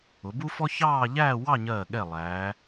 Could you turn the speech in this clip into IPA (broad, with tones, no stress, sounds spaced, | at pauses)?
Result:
ʊ˩˧ b u˥ f ɔ˥ ç ɑː˥˧ ʎ æː˥˧ w ɑ˥˧ ɲ ɜː˧˩ ɠ ɛ˧˩ lˠ æː˩˧